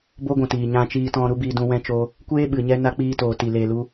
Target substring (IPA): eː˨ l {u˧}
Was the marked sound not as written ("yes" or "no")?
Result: no